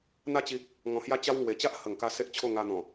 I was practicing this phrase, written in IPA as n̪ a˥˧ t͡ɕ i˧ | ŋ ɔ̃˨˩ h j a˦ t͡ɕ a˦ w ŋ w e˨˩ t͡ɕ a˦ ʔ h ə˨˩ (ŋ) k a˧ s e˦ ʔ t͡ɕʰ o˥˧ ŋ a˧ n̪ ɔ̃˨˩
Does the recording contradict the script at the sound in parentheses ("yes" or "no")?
no